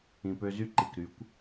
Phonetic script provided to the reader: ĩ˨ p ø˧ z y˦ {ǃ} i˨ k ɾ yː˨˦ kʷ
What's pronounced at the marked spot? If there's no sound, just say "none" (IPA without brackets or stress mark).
ǃ